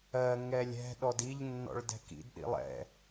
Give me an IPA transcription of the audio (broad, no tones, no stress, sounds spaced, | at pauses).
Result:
ɜ ŋ ɛ lʲ ɛ̤ ɗ ɔ d i ʎ nː ɔ̰ ɭ d ɛ̤ k ḭ d ɗ ḭ lˠ ɛ̰